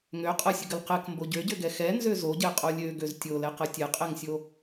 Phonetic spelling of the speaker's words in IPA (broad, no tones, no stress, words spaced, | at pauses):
ŋø qʼɐsʲəɡəl qɛkmbo ɟøɟøɡɛ xɛnzø zoɟɛqʼo lʲøɡøz tʲolɛqɐ tʲɛqʼɛŋsʲo